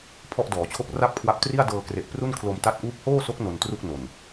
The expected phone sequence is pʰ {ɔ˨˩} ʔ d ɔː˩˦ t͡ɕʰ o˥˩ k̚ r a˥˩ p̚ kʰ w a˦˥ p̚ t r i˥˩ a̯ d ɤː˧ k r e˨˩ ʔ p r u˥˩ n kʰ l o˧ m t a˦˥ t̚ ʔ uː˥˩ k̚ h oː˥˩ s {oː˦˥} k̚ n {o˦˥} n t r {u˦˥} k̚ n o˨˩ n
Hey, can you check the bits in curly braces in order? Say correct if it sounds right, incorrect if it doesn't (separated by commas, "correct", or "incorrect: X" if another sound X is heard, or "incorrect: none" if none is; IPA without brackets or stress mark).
incorrect: ɔ˥˩, incorrect: o˦˥, incorrect: o˧, incorrect: u˥˩